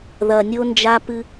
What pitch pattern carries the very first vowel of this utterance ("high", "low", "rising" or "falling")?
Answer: low